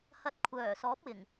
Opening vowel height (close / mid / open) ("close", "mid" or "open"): open